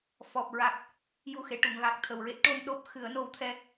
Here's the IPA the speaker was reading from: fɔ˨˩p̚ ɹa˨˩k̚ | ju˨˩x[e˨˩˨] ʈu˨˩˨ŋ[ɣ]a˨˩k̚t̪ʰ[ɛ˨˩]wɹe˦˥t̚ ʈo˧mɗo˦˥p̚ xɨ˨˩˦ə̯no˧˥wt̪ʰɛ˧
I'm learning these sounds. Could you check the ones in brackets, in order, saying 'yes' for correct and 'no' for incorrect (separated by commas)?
yes, yes, no